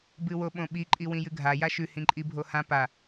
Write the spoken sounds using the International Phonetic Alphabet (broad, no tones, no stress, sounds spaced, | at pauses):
b ɨ w o ɓ õ ɓ i ǃʼ i w ĩ j ɨ ɡʱ a j a ʃ ʉ h ĩ ǃʼ i bʱ o h ã p a